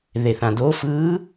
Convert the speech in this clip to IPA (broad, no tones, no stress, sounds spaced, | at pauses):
ð e θ ã d o f ɯː